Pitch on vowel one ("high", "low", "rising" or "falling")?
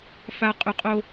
high